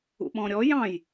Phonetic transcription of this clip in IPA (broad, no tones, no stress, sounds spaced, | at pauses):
ṵ ɓ ɔ̃ ɾʲ ɔ j ɑ̃ j